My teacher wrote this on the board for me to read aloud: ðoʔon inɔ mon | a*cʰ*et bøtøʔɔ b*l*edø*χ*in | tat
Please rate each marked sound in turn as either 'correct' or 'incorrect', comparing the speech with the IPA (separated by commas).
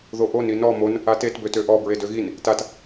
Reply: incorrect, incorrect, incorrect